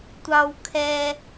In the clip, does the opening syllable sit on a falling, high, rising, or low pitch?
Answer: high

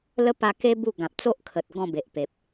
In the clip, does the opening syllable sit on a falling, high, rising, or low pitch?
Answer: high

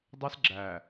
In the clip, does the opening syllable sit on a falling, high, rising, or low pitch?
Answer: high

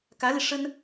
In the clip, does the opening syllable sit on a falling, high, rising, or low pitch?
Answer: rising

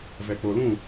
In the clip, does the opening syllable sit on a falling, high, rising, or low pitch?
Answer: low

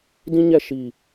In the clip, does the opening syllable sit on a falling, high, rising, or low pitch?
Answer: high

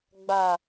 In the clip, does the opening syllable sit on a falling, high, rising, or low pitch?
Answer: low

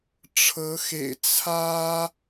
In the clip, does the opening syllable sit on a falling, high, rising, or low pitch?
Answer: rising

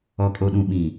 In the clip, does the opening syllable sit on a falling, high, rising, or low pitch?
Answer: low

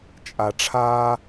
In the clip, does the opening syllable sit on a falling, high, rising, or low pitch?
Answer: low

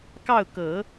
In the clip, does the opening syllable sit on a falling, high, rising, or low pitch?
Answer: falling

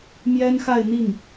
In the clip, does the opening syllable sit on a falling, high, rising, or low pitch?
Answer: high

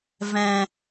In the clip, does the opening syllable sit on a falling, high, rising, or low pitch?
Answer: low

